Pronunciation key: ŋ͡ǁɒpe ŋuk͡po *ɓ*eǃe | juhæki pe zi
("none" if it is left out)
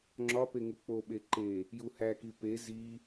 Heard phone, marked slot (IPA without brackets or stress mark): ɓ